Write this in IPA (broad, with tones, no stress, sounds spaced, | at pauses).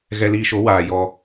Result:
ɣ ɛ˧ l iː˧ ʃ o˨˦ w aː˨ j ɔ˧